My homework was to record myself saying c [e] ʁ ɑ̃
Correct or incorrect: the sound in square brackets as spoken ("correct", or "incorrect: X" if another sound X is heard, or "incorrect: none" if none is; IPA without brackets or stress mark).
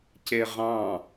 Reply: correct